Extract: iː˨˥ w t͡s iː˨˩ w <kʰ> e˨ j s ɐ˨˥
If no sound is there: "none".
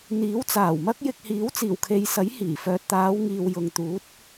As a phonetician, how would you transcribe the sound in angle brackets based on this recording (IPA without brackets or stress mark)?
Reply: kʰ